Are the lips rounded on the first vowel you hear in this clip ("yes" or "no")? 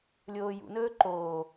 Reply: yes